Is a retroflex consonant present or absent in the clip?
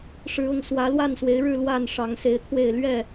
present